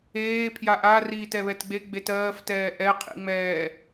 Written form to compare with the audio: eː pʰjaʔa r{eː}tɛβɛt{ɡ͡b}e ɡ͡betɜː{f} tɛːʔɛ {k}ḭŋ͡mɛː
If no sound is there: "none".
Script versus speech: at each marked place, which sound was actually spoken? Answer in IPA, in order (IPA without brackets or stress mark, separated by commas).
iː, ɡ͡b, f, qʰ